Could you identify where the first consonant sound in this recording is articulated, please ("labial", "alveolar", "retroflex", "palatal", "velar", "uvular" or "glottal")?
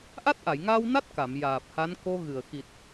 glottal